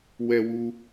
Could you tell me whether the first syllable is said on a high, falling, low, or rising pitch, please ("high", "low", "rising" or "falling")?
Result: low